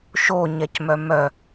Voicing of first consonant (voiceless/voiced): voiceless